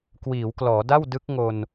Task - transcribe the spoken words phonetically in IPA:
k w iː˩˦ w k l ɔː˩˦ d a˥˩ w d ɯ˦˥ k̚ ŋ o˧ n

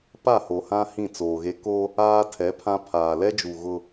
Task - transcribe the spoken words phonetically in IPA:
p a˦˨ h o˨ h ã˦ h ĩ˦˨ t͡s oː˨ ɣ e˦ k o˦ | aː˦ tʰ ɛ˨˦ pʰ ã˦ pʰ aː˨ l ɛ˦ d͡ʒ u˨ ɣ ʊ˦

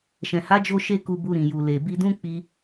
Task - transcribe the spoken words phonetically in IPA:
ʃ ɛ̃˨ h a˨˦ d͡ʒ o˧ ʃ e˦ k u˧ b u˧ ɾ ĩ˨ j u˨ l e˨ b i˧ d ũ˦ k͡p i˧

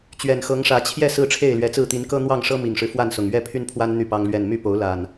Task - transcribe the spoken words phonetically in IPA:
t͡ɕ ɥ ɛ˨˩ n x ɤ˨˦ ŋ ʂ ä˨˦ t͡ɕʰ j ɛ˥˨ s ɹ̩˥˨ ʈ͡ʂʰ e˥˨ ɪ̯ l ɥ ɛ˨˦ t͡s ɹ̩˥˨ t̪ i˨˦ n k ɤ˦ n̪ w ɑ˥˨ ŋ ʂ ɤ˦ m i˨˩ ŋ ʂ ɻ̩˦ f w a˥˨ n s ʊ˨˩ ŋ ɥ ɛ˥˨ pʰ y˦ n pʰ w a˦ n n̪ y˥˨ p ɑ˦ ŋ l ɥ ɛ˥˨ n m y˥˨ p o˨˦ ʊ̯ l a˨˩ n

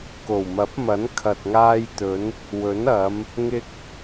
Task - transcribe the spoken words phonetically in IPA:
k o˨˩ w m ɐ˨˥ p̚ m ɐ˨˥ n kʰ ɐ˨ t̚ ŋ aː˧ j t̪ ɵ˨˧ n | w ɵ˨˥ n ɐ˨˧ m | ŋ ɪ˥ k̚

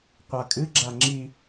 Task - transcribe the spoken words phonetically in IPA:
qʷ a kʼ ɨ ɡ͡ǁ a ŋ͡ǁ i

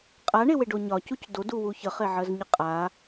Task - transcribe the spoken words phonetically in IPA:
qʼ a ɳ e w e ɖ o ɲ ɒ c u c d o d u w u ç ə χ e ʕ ɜ z ɲ ɨ qʼ a

